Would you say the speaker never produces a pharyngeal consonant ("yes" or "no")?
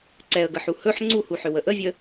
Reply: no